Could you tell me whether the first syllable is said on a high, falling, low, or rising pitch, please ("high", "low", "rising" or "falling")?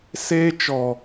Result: high